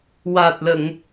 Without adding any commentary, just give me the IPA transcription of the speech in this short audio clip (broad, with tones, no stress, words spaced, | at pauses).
waː˨˩t̚lə˨˩˨ŋ